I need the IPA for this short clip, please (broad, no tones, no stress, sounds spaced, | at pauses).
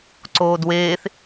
ǀ oː d w eː θ